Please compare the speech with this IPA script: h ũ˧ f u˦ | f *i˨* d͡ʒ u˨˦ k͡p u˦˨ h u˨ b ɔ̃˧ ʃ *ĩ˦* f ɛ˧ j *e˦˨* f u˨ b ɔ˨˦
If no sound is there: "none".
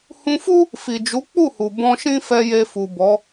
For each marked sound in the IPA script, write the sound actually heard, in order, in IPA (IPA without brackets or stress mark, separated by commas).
i˨, ĩ˦, e˧